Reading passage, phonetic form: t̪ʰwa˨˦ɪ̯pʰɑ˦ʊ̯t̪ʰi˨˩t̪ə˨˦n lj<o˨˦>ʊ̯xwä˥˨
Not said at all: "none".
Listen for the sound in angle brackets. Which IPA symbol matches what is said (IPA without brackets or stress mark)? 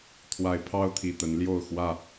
o˥˨